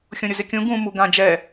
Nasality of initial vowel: nasal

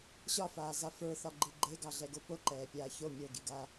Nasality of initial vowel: oral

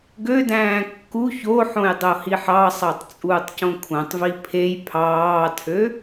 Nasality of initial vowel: oral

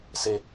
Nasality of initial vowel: oral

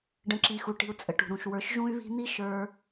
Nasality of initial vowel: nasal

